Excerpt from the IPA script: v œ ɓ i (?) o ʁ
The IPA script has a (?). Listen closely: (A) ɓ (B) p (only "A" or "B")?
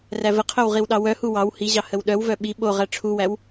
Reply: A